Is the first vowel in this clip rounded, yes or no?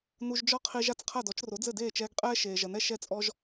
yes